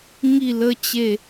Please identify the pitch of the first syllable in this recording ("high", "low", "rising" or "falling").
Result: falling